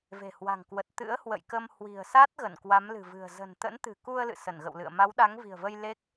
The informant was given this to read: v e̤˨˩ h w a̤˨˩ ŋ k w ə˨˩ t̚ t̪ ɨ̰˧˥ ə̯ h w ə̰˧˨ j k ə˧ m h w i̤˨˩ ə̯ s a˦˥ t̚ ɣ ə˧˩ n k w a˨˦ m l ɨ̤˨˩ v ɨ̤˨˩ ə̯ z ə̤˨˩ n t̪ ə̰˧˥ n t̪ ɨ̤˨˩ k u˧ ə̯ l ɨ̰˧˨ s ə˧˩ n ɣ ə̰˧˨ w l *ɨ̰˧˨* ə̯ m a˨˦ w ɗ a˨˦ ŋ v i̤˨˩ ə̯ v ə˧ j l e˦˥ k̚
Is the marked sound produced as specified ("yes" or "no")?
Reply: yes